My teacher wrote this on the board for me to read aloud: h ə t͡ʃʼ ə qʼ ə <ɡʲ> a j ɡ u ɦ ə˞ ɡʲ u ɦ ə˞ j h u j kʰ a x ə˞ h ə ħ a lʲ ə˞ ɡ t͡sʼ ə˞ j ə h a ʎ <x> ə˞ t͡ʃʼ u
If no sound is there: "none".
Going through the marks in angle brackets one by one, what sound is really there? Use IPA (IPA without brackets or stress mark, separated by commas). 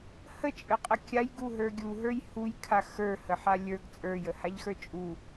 kʲ, x